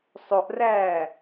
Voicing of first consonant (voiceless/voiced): voiceless